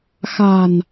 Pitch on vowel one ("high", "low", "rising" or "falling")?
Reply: low